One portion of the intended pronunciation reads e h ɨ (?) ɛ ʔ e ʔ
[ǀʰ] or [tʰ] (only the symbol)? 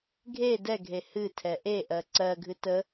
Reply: tʰ